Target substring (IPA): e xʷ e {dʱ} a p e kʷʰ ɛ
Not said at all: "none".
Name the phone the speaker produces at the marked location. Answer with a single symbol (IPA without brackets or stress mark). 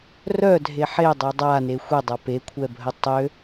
dˤ